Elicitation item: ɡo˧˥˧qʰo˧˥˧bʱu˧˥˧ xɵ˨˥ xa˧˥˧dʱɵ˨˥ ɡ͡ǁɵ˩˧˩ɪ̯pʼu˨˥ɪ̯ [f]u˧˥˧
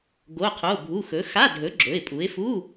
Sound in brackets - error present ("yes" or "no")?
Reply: no